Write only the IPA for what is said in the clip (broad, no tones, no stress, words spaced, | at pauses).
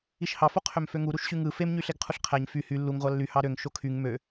iʃhɑfo qʰømføŋu ɾuʃɕyŋɯ femɲyɬeɡ qʰuɬqʰæɲ fy hy lːuŋ ʁʷɑlːy hɑɾøŋ ʃokʰyŋ mø